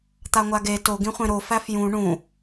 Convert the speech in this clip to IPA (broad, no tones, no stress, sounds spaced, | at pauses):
t̪ a ŋʷ a ɡ e t o ɡ ĩ χʷ ẽ ɾ o f æ f j ũ ɳ ũ